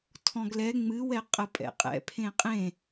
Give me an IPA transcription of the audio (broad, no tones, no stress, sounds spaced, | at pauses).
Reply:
tʰ ɔ̃ ɡ l ɛ ŋ͡m ɨ w ɛ qʼ ə pʼ ɛ̰ qʼ ɛ̰ pʰ ẽ qʼ ẽ